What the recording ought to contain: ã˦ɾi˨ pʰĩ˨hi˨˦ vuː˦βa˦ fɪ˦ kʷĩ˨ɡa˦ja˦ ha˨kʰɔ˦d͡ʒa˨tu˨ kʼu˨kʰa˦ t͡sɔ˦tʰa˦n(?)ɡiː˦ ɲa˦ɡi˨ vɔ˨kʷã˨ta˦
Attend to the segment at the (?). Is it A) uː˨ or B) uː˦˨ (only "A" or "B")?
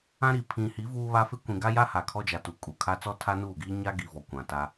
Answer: B